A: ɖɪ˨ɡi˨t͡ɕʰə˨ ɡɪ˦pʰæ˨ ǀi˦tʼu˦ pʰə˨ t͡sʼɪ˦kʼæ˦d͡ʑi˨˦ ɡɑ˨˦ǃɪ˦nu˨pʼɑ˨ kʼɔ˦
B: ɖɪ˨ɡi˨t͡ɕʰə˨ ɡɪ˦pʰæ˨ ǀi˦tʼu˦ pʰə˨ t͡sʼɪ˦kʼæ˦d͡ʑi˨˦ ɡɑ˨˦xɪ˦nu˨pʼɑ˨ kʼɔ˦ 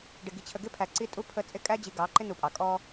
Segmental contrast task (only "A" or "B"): A